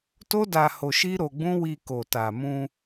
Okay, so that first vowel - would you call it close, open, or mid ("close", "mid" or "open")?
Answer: mid